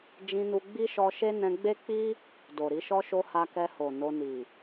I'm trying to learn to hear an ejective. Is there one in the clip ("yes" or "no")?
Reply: no